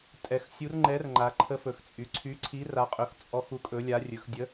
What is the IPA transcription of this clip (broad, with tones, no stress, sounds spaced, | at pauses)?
tʼ ɛ˩˧ x sʲ u˨˥ r ŋ͡ǃ ɛ˨˥ r ŋ͡ǃ a˩˧ ǃʰ ə˨˥ f ɵ˩˧ x t͡sʼ y˩˧ ǀʰ y˨˥ ǀʰ i˨˥ r a˨˥ qʼ ɵ˨˥ x t͡sʼ ɔ˨˥ x u˨˥ kʼ ɵ˨˥ lʲ a˨˥ rʲ ɵ˩˧ x dʲ ə˨˥